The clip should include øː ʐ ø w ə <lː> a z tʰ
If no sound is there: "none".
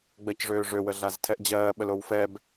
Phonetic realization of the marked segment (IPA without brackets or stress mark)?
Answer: ɮ